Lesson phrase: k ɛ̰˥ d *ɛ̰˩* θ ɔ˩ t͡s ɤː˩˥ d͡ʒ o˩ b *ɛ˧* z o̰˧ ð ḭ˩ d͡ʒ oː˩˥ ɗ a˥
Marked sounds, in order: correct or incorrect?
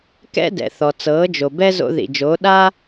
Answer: correct, incorrect: ɛ˥

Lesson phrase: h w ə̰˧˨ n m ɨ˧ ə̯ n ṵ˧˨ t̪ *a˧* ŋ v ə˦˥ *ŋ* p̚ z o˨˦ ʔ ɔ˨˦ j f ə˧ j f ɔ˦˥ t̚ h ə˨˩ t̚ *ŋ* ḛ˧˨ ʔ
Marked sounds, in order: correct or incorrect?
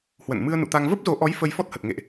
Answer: correct, incorrect: none, correct

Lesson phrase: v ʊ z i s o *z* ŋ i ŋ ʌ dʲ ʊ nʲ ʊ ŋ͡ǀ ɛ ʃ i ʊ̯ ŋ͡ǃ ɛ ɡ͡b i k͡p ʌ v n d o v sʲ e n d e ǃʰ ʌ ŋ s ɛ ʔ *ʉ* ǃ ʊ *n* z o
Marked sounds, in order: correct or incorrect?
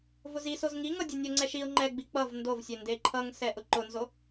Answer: correct, incorrect: ʊ, correct

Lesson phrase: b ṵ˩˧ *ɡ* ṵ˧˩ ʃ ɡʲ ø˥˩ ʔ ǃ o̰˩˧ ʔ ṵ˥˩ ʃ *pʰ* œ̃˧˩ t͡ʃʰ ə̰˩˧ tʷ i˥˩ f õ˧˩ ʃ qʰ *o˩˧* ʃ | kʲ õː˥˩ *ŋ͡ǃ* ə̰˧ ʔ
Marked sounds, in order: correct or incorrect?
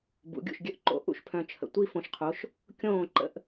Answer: incorrect: ɡʲ, correct, correct, incorrect: ǃ

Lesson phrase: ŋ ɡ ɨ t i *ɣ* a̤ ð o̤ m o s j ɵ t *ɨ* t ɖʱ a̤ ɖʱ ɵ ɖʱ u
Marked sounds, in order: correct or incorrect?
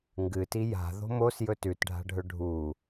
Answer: incorrect: j, incorrect: ʉ

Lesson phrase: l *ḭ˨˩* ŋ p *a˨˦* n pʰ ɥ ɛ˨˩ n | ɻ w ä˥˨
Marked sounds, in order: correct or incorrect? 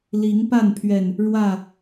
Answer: incorrect: i˨˦, incorrect: a˥˨

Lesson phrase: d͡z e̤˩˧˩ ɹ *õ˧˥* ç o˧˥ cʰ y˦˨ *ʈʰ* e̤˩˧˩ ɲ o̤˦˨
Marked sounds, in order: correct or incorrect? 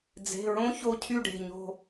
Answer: correct, incorrect: ɖ

